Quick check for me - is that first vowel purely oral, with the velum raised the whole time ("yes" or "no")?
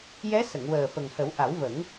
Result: yes